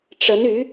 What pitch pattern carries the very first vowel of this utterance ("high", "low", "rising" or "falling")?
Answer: rising